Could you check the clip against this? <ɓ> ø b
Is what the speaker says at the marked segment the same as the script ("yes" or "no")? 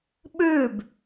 yes